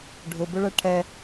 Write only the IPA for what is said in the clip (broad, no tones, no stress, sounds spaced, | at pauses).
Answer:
ɖʱ ʊ b ʊ ɭ ɛ ʈʰ ɛ